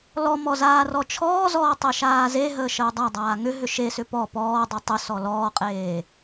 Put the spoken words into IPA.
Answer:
l ɔ m ɔ z aː r ɔ t͡ʃʰ ɔː z ɔː tˤ e ʃ aː z e ɦ əː ʃ əː dˤ a dˤ aː ŋ ʏ ɦ ʏ ʃ e s ʏ p ɔ p ɔː dˤ ʏ tˤ ʏ s ɔ l ɔː qʼ eː

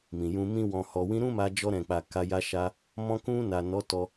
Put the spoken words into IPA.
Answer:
m ĩ˨ j ũ˧ m ĩ˦ w ɔ̃˧ h ɔ˨ w ĩ˧ ɾ ũ˦ m a˧ d͡ʒ ɔ˧ ɾ ɛ̃˨ k͡p a˨ k a˧ j a˧ ʃ a˧ | m ɔ̃˧ k ũ˧ n a˨ n ɔ˨˦ t ɔ˧

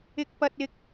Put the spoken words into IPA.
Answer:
ɪ˥ k̚ p ɐ˥ t̚ ɪ˥ k̚

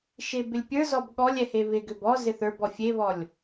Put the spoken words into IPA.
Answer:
ʃ e b ɪ lʲ pʲ ə˞ z ɔ b ɠ ɔ lʲ ɛ h e β ɪ ɡ ʏ b ɔ z ɪ θ ə˞ b ɔ fʲ e β ɔ lʲ

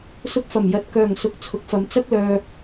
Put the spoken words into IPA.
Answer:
s ʊ˧ k̚ f ɐ˨˩ m j ɐ˨ t̚ k œː˨˩ ŋ s ʊ˨ k̚ t͡sʰ ʊ˨˥ k̚ f ɐ˨˧ m t͡s ɐ˥ k̚ l œː˧

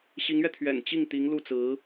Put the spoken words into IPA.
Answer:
ɕ i˧˥ ŋ ɥ ɛ˧ t̪ʰ ɥ ɛ̰˨˩ n t͡ɕ i˥˩ ŋ t̪ i˧˥ ŋ l u˥˩ t͡s ɹ̩˧˥

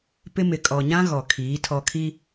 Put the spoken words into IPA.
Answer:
p ɪ˦ m ɪ˨ kʼ ɔ˨ ɲ ã˦ ɣ ɔ˨ kʰ iː˨˦ tʰ ɔ˨ kʰ i˦

